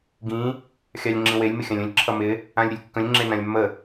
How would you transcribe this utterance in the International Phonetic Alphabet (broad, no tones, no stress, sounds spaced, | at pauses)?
ɡ ĩ | xʲ ɑ lʲ ŋ͡ǁ ĩ w e lʲ m ɪ xʲ ã lʲ ə̃ lʲ ǁʰ ʌ m ɪ | ã lʲ ɾʲ ə lʲ kː ə̃ lʲ ŋ͡ǁ e n ã lʲ mː ə